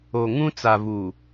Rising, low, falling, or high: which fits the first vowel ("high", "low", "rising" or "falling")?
low